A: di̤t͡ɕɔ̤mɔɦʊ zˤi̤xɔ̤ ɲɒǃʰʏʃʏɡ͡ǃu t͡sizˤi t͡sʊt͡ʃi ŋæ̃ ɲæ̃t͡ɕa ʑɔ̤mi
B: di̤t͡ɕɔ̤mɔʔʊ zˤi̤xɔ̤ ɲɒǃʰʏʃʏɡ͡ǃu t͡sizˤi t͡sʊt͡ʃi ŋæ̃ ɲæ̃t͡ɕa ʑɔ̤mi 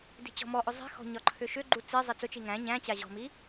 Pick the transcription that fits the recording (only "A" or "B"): B